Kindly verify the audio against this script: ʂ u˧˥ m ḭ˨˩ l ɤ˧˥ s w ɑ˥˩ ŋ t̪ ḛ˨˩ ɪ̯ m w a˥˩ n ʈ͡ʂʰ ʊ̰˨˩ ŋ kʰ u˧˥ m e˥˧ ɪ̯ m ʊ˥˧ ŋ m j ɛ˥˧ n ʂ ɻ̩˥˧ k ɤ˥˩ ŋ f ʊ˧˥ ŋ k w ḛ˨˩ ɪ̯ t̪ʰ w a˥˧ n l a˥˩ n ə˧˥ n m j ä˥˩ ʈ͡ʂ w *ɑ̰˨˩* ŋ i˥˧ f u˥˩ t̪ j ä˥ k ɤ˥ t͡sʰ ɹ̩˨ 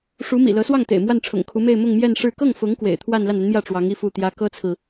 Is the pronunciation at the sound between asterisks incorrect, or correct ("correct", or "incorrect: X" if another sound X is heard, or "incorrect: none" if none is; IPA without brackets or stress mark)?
incorrect: ɑ˧˥